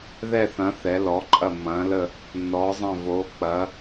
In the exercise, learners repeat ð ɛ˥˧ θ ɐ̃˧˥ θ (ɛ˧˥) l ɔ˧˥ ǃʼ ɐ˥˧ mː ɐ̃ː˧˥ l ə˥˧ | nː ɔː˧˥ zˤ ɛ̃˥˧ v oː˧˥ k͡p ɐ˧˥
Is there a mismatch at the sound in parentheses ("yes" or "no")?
no